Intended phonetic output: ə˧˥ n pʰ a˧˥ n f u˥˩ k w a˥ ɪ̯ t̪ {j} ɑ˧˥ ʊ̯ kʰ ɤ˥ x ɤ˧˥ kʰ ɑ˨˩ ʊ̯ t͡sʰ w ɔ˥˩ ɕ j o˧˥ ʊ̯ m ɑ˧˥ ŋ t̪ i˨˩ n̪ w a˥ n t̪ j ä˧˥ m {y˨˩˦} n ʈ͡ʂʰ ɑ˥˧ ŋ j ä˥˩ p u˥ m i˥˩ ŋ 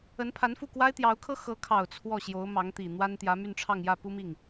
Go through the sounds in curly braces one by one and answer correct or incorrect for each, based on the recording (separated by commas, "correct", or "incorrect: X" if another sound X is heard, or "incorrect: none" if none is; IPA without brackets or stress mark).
correct, incorrect: y˥˧